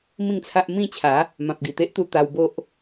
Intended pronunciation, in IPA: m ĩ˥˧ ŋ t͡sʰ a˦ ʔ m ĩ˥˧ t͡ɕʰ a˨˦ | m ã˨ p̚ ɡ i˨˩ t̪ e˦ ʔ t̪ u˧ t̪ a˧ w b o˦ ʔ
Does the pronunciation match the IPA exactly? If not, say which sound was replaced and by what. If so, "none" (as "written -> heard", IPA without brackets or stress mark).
none